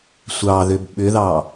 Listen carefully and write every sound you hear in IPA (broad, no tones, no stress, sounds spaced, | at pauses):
sʷ ɑ ð ʏ b ɓ ʏ ð ɑ